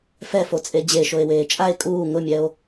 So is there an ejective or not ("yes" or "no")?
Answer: yes